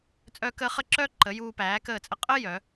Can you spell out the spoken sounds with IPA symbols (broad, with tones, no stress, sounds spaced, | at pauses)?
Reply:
t͡sʼ œː˦ k əː˦ χ ə˦ ǁ œː˦ ǃ ə˨˦ j uː˧ p æː˨˦ k əː˦˨ t͡sʼ ə˦ qʼ əː˦ j œ˨˦